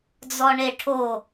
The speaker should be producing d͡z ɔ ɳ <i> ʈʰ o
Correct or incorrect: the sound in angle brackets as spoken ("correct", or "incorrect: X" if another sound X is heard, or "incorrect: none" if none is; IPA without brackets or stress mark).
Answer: incorrect: e